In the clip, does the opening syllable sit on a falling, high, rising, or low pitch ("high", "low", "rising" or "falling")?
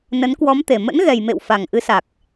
rising